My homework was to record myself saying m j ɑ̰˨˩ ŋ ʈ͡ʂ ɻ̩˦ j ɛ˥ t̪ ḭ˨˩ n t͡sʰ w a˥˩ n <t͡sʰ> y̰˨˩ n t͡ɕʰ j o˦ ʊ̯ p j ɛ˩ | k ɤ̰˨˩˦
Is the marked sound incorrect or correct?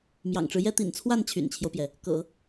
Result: incorrect